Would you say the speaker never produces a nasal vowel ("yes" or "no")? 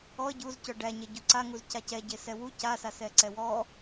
yes